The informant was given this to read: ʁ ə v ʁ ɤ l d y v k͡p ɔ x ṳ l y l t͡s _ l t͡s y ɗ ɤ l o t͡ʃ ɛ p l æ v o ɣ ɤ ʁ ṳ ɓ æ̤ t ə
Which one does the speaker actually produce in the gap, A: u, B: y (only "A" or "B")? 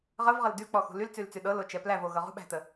B